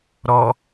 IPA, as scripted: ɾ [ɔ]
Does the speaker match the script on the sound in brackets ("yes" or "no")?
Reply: yes